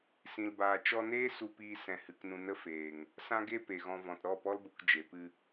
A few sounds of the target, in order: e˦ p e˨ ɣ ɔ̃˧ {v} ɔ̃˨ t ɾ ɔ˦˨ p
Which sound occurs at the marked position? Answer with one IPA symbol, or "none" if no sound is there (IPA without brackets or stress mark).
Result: v